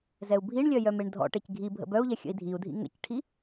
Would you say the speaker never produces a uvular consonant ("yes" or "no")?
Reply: yes